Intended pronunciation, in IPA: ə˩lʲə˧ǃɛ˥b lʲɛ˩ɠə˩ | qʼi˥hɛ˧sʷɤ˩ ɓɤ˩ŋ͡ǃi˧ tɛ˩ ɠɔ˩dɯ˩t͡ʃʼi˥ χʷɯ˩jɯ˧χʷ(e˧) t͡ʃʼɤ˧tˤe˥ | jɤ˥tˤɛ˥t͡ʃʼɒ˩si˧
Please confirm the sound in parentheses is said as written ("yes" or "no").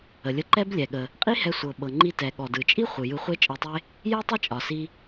no